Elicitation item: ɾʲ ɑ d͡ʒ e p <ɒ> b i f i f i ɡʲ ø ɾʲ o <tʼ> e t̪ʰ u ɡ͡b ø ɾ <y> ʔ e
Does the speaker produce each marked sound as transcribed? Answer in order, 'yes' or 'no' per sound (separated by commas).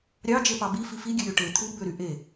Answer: no, no, yes